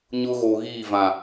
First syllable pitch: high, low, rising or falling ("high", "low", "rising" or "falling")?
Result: high